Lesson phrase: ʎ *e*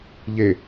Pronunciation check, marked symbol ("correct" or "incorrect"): correct